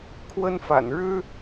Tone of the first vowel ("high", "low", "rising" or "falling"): high